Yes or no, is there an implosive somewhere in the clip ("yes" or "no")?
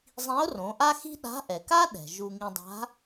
yes